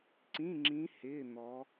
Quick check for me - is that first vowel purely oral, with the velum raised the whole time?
no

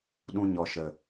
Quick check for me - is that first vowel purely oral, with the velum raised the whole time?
no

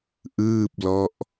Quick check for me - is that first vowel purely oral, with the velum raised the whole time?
yes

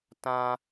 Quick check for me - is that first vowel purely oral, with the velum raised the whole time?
no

